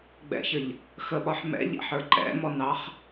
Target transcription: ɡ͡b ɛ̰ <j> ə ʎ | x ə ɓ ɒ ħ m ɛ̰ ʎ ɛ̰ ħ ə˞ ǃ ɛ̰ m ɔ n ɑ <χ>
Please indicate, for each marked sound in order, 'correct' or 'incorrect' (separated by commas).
incorrect, correct